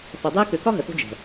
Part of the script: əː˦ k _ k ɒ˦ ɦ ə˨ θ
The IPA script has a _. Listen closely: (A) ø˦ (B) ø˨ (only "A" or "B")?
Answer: B